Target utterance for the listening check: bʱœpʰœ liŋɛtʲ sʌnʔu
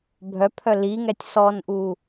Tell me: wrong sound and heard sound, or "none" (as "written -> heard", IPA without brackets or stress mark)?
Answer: ʌ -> ɔ